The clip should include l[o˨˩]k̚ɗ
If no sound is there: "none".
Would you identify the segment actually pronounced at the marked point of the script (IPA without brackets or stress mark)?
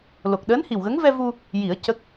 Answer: o˨˩